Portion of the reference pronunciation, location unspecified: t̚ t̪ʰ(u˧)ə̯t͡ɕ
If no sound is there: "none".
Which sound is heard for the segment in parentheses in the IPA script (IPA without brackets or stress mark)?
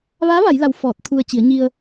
u˧